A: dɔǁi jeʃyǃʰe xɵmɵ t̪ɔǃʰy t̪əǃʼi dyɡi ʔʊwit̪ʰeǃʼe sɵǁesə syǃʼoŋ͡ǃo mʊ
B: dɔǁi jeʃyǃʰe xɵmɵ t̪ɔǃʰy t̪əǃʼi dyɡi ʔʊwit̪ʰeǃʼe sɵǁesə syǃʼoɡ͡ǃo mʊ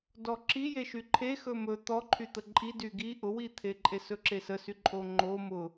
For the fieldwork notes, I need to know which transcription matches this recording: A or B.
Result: A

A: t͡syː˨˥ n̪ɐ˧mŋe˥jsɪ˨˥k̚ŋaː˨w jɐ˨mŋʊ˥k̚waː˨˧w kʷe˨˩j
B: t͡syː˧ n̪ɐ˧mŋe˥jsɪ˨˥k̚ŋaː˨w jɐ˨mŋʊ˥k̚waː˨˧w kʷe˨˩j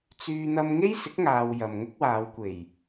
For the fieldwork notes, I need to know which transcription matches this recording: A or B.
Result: B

